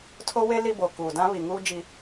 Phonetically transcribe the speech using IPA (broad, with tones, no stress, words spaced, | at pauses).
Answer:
tʰo˦we˦ li˦bo˨ kuː˨dã˦βi˨ŋuː˦ d͡ʒi˦